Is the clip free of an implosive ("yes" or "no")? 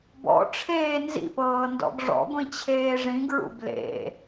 yes